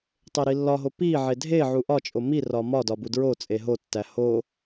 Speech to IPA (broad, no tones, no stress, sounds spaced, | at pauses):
tˤ e ɾ i lː ɒ ɦ o p i ʕ e dʱ e ʕ u ʔ ɒ t͡ʃʼ o m i r ɒ m ɒ d ɒ b u d ɹ o t͡sʼ e ɦ o tː æ h o